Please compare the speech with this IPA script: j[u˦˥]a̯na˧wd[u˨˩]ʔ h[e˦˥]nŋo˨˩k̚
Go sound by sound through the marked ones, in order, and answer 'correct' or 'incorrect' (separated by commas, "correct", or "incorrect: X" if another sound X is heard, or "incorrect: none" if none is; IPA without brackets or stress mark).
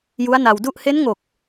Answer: correct, incorrect: u˥˩, correct